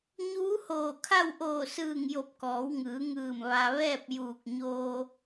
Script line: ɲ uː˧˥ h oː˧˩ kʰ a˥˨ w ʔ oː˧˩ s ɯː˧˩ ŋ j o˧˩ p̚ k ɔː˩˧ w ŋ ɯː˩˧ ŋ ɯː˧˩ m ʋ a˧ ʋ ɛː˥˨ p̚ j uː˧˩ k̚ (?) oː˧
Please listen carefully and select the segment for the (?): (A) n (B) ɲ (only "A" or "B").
B